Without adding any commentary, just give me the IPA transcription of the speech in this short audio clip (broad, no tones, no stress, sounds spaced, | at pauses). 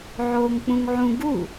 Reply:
ʕ oː ŋ k͡p ũ ŋ ʕ ũ ɡ u